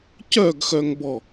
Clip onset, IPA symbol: c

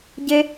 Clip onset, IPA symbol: ɟ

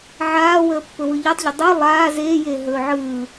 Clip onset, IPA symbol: ʕ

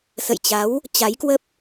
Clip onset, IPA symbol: s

